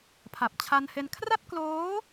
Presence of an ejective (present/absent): absent